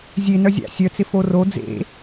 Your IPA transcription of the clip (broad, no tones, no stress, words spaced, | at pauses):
zʲe nœzʲa̰ sʲœt͡sɪ foro d͡zḛ